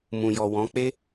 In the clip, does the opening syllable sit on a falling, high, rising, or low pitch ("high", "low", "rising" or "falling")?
low